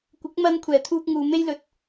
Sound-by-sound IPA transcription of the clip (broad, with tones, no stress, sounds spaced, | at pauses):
kʷ ɪ˨˥ k̚ m ɐ˧ n kʷʰ ɛː˨˩ t̪ʰ uː˧ k̚ ŋ uː˨ m e˥ j l ɵ˨ t̚